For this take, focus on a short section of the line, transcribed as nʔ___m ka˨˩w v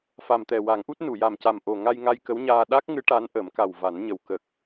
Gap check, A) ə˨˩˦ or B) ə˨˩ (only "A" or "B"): A